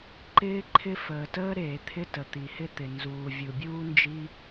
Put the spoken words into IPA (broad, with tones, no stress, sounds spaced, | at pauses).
ǃ ɪː˥ ǃʰ ɪ˥ f əː˩ t əː˥ ɾ eː˩ t̪ʰ ɪ˥ t ə˩ t̪ i˩ h ɪ˥ t̪ ɪ˩ n z uː˩ vʲ u˩ bʲ uː˥ n d͡ʒ i˥